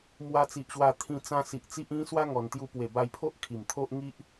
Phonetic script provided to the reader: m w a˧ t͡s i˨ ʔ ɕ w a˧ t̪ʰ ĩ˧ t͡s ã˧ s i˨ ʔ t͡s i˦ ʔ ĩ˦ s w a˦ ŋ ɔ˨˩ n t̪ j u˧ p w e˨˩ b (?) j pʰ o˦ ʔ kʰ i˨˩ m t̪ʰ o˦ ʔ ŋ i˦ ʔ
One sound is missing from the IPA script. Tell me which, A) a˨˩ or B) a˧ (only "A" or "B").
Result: B